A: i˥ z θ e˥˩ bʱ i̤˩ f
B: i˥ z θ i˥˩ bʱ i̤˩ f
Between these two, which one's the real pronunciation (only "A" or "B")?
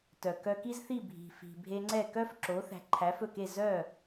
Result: B